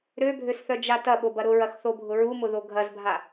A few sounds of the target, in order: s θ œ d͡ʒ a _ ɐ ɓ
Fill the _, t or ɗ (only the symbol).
t